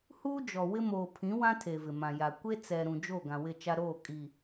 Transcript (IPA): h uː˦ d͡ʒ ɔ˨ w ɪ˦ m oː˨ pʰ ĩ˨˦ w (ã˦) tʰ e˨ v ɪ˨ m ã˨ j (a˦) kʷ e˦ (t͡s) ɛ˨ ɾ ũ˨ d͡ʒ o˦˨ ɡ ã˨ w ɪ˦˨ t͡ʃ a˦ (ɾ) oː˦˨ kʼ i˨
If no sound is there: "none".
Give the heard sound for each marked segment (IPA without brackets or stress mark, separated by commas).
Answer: ã˦, a˨, t͡s, ɾ